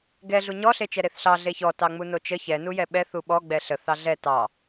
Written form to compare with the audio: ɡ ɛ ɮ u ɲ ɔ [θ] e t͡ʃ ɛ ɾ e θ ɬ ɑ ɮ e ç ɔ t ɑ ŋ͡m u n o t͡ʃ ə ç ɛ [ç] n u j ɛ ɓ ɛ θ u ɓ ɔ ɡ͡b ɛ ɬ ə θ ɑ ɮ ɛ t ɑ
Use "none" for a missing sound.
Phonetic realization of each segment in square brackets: ɬ, none

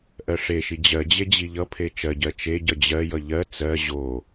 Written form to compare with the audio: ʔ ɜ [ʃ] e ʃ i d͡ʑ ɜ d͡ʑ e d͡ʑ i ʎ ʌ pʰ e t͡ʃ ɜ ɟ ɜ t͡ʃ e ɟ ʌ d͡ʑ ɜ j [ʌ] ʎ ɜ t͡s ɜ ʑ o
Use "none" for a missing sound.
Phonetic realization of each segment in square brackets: ʂ, ʌ

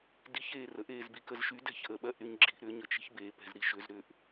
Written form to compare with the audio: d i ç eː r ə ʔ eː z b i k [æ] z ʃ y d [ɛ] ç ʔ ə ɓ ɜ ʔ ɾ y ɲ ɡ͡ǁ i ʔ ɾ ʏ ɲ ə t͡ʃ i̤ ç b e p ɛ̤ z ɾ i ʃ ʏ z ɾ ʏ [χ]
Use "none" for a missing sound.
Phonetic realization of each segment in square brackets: ə, ɛ̤, ʔ

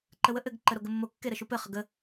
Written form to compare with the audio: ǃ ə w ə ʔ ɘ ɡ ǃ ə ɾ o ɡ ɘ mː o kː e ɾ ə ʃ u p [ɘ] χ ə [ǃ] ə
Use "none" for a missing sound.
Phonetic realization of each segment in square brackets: ɘ, ɡ

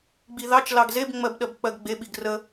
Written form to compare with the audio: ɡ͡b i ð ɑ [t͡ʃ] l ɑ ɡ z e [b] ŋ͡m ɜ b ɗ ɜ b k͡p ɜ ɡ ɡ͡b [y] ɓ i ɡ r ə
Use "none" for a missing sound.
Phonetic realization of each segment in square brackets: t͡ʃ, b, e

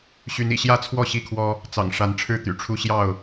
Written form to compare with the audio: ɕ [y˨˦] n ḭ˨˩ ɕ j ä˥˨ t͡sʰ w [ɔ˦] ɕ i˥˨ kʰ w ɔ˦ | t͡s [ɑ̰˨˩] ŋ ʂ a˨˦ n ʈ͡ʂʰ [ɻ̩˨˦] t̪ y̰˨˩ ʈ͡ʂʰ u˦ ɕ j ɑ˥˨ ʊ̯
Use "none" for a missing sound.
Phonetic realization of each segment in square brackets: y˨˦, ɔ˥˨, ɑ̰˨˩, ɻ̩˥˨

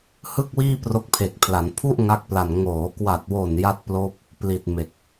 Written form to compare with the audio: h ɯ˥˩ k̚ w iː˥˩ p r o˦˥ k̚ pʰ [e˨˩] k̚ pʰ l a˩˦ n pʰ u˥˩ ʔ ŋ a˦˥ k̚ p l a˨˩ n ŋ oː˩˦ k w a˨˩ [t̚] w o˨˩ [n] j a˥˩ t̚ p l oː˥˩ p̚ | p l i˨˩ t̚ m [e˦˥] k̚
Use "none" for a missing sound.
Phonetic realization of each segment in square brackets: e˨˩, t̚, n, e˨˩

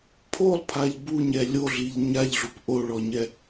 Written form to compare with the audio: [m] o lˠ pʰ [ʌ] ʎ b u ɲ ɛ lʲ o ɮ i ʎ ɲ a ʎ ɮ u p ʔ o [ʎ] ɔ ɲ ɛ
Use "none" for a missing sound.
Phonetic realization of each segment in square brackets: pʰ, a, ɭ

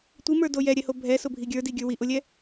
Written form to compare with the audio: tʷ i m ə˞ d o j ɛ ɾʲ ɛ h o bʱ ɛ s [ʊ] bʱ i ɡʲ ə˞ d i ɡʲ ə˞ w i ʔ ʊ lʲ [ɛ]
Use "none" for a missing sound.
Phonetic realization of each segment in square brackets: ʊ, ɛ

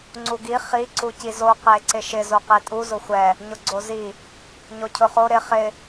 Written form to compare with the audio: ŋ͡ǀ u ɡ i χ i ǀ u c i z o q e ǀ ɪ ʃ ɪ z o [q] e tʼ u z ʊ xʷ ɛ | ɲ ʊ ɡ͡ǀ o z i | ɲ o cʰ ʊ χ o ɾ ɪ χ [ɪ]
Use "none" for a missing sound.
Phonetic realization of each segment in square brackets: q, ɪ

